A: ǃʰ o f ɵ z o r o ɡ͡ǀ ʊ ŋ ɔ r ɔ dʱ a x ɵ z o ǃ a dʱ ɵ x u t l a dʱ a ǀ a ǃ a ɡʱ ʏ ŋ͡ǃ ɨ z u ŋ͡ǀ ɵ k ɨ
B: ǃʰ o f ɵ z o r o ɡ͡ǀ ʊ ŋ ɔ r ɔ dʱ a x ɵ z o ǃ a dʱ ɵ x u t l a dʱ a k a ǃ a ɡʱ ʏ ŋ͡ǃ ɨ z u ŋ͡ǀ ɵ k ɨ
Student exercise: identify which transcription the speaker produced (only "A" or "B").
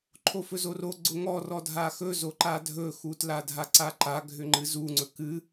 A